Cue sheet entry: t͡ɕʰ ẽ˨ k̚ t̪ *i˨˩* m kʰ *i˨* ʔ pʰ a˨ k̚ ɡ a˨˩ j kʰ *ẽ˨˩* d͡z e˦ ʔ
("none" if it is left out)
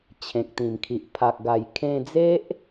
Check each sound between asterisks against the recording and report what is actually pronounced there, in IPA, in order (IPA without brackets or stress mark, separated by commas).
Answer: ĩ˨˩, i˨, ẽ˧